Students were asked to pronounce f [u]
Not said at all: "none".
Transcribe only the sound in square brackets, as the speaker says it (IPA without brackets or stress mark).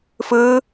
ɯ